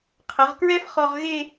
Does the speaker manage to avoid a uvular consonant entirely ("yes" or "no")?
no